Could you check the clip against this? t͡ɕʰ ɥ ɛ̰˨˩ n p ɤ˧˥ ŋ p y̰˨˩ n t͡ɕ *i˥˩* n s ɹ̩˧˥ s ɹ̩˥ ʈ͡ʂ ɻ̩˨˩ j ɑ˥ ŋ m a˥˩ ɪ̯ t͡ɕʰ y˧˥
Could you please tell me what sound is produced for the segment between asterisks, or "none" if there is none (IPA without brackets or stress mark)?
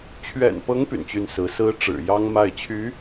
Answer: y˥˩